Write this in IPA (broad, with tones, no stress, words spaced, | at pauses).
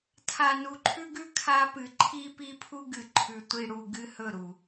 tʰa˨nu˨ǃʰʉ˦ɡʉ˦ kʰa˦pɨ˨ ǃʰi˦pi˦pʰu˦ ɡɨ˨ ǃʰʉ˨ tʷi˨ɽu˨ ɡɨ˦hɵ˦˨ɾu˨